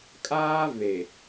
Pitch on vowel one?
high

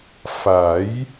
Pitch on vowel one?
rising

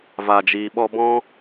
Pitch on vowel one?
low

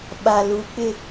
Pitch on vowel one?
low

